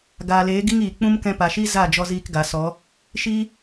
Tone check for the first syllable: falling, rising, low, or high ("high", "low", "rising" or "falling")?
low